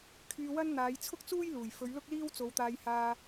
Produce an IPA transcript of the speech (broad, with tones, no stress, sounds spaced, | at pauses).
kʰ yː˧ w ɐ˥ n n̪ aː˨˧ j t͡sʰ ʊ˥ k̚ t͡s uː˥ j l uː˨˩ j f ɵ˨˧ ɥ l ʊ˥ k̚ l iː˥ w t͡s o˨˧ w t̪ aː˧ j h aː˧